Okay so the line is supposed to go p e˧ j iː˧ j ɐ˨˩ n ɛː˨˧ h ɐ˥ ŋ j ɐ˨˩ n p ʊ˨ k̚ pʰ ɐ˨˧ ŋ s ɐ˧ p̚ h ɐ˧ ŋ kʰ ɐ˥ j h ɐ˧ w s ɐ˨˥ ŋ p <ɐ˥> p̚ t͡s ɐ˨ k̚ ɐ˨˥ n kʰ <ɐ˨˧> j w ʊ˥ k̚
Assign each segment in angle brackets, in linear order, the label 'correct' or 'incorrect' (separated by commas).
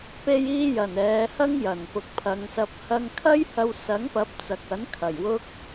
incorrect, incorrect